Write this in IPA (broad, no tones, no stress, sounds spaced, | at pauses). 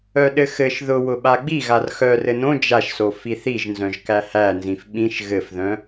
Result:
œ ɗ ɘ x ɘ ʃ ð ʊ w ʊ ɓ a ɡ͡b i ɣ a r x œ r ɘ n õ d͡ʒ a ʃ s o f i θ i ʒ n z œ̃ ʒ k æ h æ n z ĩ f ɓ ĩ ʃ ɣ ɘ f ð œ̃